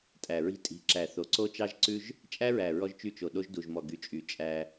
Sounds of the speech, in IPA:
tʼ æ˨ ɹ i̤˦ tʼ i̤˨ ǁ æ˨ θ o˨ ǀ o˦ t͡ʃ ɑ˦ ʒ ǀ ʉ˦ ʒ | t͡ʃʼ æ˦ ɹ æ˨ ɹ ɔ˦ ʒ t͡ʃ y˦˨ t͡ʃ o˨ ɗ o˦ ʒ d u˨ ʒ m ɔ˨ ɡ y˨ t͡ʃʼ y˨ t͡ʃʼ æ˦

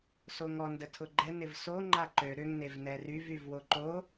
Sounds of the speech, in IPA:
s o ŋ ɔ n d ə tʰ ʊ ɡ͡ǃ ɛ n ɪ v s o ŋ͡ǃ a ǃ ø ɾ ʏ ŋ n e v n ɛ r y v y v w o ǃ o

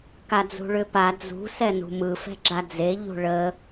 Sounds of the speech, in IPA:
k a d͡z ṳ ɭ ʏ p a d͡z ṳ s ɛ n ṳ m ɯ f ɛ̤ ɡ͡ǁ a d͡z e ʎ ṳ ɭ ə

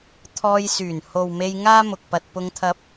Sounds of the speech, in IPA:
t̪ʰ ɔː˧ j s yː˨˩ n h o˨ w m e˧ j ŋ aː˥ m ʊ˨ k̚ p ɐ˧ t̚ p ʊ˧ ŋ t̪ʰ ɐ˧ p̚

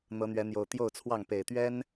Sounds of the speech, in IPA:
n̪ ɤ˨˦ n̪ ɥ ɛ˨˦ n̪ j o˨˩ ʊ̯ t̪ j o˥˨ ʊ̯ t͡sʰ w ɑ˥˨ ŋ p e˨˩ ɪ̯ t̪ ɥ ɛ˦ n

